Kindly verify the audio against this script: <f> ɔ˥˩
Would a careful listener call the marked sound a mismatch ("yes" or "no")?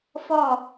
no